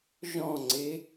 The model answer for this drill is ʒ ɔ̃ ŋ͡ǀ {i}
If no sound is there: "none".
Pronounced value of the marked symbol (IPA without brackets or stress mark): e